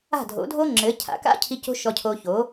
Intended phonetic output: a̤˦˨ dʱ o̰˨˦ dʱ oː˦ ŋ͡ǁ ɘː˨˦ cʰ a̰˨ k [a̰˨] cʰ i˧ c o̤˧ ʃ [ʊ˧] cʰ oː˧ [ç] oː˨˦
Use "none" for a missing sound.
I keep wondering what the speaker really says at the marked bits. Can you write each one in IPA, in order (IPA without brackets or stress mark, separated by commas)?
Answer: a̰˦, ɔ˧, ç